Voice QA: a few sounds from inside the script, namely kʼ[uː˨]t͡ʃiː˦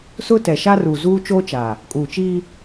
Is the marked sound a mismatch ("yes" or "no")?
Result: no